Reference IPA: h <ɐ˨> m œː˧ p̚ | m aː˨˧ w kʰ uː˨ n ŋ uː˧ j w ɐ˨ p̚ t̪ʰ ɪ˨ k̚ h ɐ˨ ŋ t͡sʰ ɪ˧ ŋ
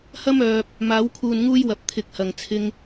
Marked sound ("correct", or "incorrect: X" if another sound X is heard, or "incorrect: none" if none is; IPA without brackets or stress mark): incorrect: ɐ˥